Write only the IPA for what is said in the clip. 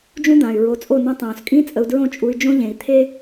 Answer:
d͡ʒ ũ˦ d̪ ãː˨ y̯ ɹ o˨˦ t͡sʼ o˦˨ n õ˧ tˤ õː˨ s kʼ ĩ˦ t͡sʼ ə˧ u̯ d ɹ õ˦ t͡ʃʼ u˧ y̯ d͡ʒ õ˦ ʎ ẽ˨ i̯ t̪ʰ eː˦

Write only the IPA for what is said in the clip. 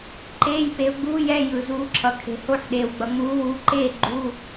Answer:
ǃ eː˧˥˧ j p e˨˦ ʊ̯ ɡ͡b uː˧˥˧ j ɛ˧˥˧ j ɯ˨ z uː˨˦ ǁʰ ʌ˨ kʰ e̤˨ h o˥˨ ħ ɗ eː˨ w ɡ͡b ʌ˨ ŋ͡m uː˨˦ w uː˨˦ ǃ eː˥˨ ɡ͡ǃ u˧˥˧

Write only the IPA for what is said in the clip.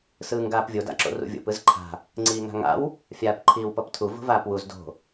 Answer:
s ɯː ŋ ɡ aː p vʲ o d a̰ ǁ o̰ r ṵ vʲ o̰ p ɯ z ǃʰ a̤ | ŋ͡ǀ iː ŋ a̤ ŋ a̰ w | fʲ aː p ǃʰ iː w p ʌ p tʰ u v o̤ v aː p w u z d o̤

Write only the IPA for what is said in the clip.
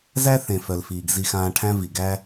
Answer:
z æ˦ θ ẽ˨ f œ˨ l f iː˨ ɡ z i˧ x ãː˧ ʈʰ æ̃˦ v i˨ ɡ æ˦

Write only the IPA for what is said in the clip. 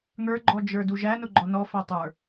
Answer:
ŋ ə˞ ɡ͡ǃ ɔ d͡ʒ ə˞ d u ʒ æ n ʊ ɡ͡ǃ ɔ n ɔ f æ tˤ ə˞

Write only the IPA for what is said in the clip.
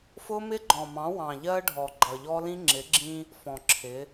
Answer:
f ʊ˦ m ɪ˦ ɡ͡ǃ ɔ̃˨ m ɑ̃˨˦ w ɑ̃˨ ʎ ɜ˦ ɖʱ ɔ˨ ɡ͡ǃ ʌ˨ ʎ ɔ˦ l ĩ˦ ŋ͡ǁ ɪ˨˦ ɡ͡ǁ ĩ˦ | f ɔ̃˨ ǁʰ ɪ˨˦

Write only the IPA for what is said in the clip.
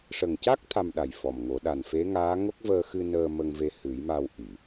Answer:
ʂ ə˨˩ ŋ c a˦˥ k̚ t̪ʰ a˧ m ɗ a˨˩ j f ɔ˨˩ m ŋ o˨˩˦ ɗ a˨˩ n f e˧˥ ŋ aː˧˥ ŋ o˦˥ k̚ v əː˧ x ɨ˧ n əː˧ m ə˧ ŋ v e˧ h ɨ˨˩˦ j m a˧ w ʔ i˨˩˨

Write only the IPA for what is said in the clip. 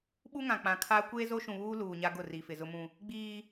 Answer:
ɓ u˦ ŋ ã˨ k͡p ã˨ kʰ aː˦ kʷ eː˦ z o˦ ʃ ũ˨ β uː˦ l uː˨ ɲ a˦ ɡ ʊ˦˨ r i˨ f ɪ˨ z ʊ˦ m ũ˦ | ɡ͡b iː˦

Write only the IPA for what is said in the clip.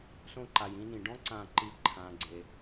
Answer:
s õ˧ ǃ a˨ j ĩ˧ n ĩ˨ ɖ ɔ̃˦ ǀ ã˦˨ ǃ i˦˨ ǃʰ ãː˦ ɡ͡ǀ e˦

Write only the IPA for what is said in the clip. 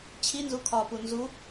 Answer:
t͡ɕʰ i n z u kʰ ɒ p u n z u

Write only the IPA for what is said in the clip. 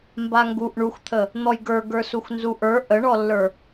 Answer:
m b a ŋ ɡ u ʔ ɳ u x t̪ʰ ə | n̪ ɔ j ɡ ə˞ ɡ ə˞ s u x n z u ʔ ə˞ ʔ ə ɳ ɔ lː ə˞

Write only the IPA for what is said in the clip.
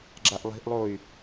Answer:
ɡ͡ǁ a ʔ lˠ i̤ ʔ lˠ o y̯

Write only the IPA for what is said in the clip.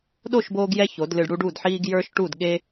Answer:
ɗ o˦˨ ʃ b oː˦ ɡ j ɛ˦ ç o˨˦ d l ɨ˧ ɖ ɽ u˦ ɖ u˦˨ d ħ iː˦ ɡ j ə˞˦ ʃ ʈ u˦˨ d ɠ e˦

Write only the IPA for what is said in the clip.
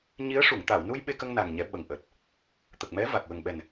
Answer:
ɲ i˧˥ ə̯ ʂ u˨˩˨ ŋ t̪ a˨˩˨ w n u˧ j ɓ e˧ k ə˧ ŋ n a˨˩ ŋ ɲ ɛ˨˩˦ ɓ ə˨˩ ŋ ʔ əː˨˩ t̚ | t̪ ə˨˩ k̚ m ɛ˧˥ v a˨˩ k̚ w ə˨˩ ŋ ɓ ɛ˨˩ n

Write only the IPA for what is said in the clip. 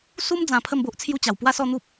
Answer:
s u˧ m d͡z ã˨˩ pʰ ə˥˧ m b o˦ ʔ t͡sʰ j u˦ t͡ɕ a˨˩ w p w a˥˧ s ɔ˥˧ n̪ u˦ p̚

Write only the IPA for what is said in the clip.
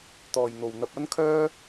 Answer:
t̪ ɔː˨ j n̪ o˨ w n̪ ɐ˧ p̚ ɐ˥ n kʰ œː˥

